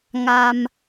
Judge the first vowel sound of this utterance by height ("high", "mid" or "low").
low